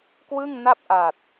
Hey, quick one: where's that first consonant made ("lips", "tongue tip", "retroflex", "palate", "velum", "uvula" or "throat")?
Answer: velum